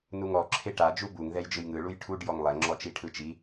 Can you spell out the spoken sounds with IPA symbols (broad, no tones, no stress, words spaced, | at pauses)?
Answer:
nuŋɔ ǁʰeʈa d͡ʒubuŋ ðɛjd͡ʒɯjŋɯ ɭujʈʰuɖ jɔŋlˠɛ ŋ͡ǁɔt͡ʃiʈʰɯt͡ʃi